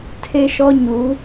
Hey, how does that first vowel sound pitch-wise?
high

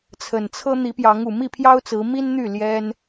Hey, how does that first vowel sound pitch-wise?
low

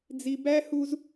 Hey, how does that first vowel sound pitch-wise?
low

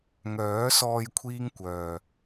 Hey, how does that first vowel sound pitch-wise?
rising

